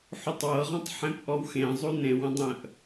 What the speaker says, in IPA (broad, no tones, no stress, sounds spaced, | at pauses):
ħ u tˤ w ɤ ʁ ɔ̃ tˤ ħ ẽ p ʔ ɔ w x ẽ zˤ u n ẽ w ə̃ dˤ ə̃ ʔ